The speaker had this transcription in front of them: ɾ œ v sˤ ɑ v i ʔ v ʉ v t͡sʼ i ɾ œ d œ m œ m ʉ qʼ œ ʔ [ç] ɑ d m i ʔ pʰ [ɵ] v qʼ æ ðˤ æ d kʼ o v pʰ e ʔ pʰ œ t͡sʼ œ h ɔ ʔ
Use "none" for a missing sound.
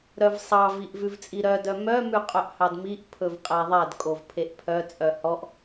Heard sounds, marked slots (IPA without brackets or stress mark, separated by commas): h, ɵ